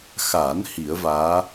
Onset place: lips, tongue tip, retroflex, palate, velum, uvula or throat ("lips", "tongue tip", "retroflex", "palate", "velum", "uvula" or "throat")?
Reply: velum